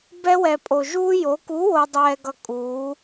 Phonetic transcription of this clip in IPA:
bɛ˥wɛ˧pʼo˧ ʒuː˥jo˧˥ ku˧˥wo˧dˤɛː˧ɡʌ˧ kʼuː˧˥

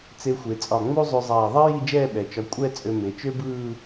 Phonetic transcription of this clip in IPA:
t͡se˧xʷe˩˧ t͡sʼɒ˧˩ŋ͡mu˥zˤʉ˧zˤɛː˧˩ ðˤi˥ ji˥˧d͡ʒɛː˥˧ɓɛ˩˧ t͡ʃɒ˧ kʷʼɛ˥˧ t͡sʼø˧me˩˧t͡ʃø˥bɯː˥˧

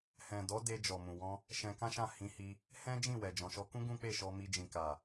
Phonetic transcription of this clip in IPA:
hɛ̃˨dɔ˨˦ de˧d͡ʒɔ˨ mũ˨wɔ̃˧ | ʃɛ̃˧kã˦ʃã˦˨ hĩ˧hi˧ | hɛ̃˦d͡ʒĩ˦˨wɛ˨ d͡ʒɔ̃˨ʃɔ˧kũ˦ ɡũ˦k͡pe˦˨ʃɔ˧mi˧ d͡ʒĩ˨ka˨

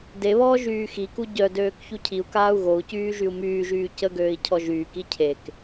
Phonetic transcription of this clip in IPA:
deβɔː ʒyːxiku ɟœdøːk çucʰiu̯kaːu̯ ɣou̯cyː ʒyu̯myːʒyː cəɡøːi̯ cʰɔʒyːki cʰek

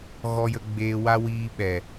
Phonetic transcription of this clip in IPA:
ɣɔ˧jə˧ɡ͡beː˧wa˦ wiː˧ɓɛ˨

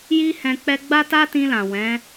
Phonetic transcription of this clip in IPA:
ji˦ hɛ̃˧k͡pɛ˦ ɡ͡ba˦ta˦tĩ˧lã˨ wɛ̃˨˦

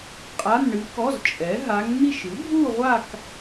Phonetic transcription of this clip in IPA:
qʼa˧˥˧nɳɨ˧˥kɔ˧˥˧z t͡ʃʼɛ˩˥ɦa˧˥ŋn̪i˥˧ʃ ɨ˩˥bʱu˥˧ʁʷa˥˧k

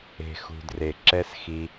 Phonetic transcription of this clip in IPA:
e̤˨xṳ˨ dre˨ǁɛ˦s xi˧

